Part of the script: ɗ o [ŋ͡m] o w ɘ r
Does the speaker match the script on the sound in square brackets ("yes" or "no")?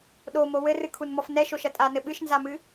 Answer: no